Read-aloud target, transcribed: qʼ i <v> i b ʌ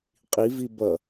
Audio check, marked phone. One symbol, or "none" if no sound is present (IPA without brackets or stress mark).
v